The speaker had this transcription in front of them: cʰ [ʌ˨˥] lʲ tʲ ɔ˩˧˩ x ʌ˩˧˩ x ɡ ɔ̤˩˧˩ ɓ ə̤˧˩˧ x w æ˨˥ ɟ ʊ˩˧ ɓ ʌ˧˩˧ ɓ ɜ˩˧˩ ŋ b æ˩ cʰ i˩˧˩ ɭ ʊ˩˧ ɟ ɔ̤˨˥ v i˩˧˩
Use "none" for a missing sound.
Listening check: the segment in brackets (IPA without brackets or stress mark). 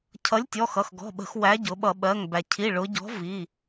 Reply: ʌ˨˥